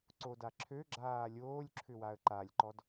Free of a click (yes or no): no